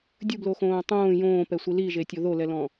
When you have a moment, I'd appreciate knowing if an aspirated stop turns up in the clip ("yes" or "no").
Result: no